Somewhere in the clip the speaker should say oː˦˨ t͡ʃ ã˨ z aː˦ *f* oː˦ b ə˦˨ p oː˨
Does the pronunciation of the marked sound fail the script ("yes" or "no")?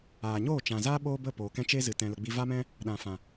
yes